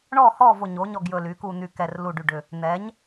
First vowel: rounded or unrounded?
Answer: rounded